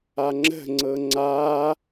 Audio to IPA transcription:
a ŋ͡ǁ ə̤ ŋ͡ǀ ɤ ŋ͡ǀ a

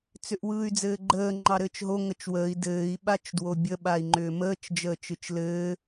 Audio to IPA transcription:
t͡s ʏ ʔ w ɯː y̯ d͡z ɘː ɡ͡ǃ əː ŋ͡ǃ ɑ ɾ ɘː t͡ʃ ɦ o ŋ ə t͡ʃ w əː i̯ d ɘː i̯ ɓ a t͡ʃ d w o bʲ ə ɓ a i̯ ŋ͡ǃ ʏː m əː t͡ʃ d͡ʒ əː t͡ʃ ɯ t͡ʃ l ɘː

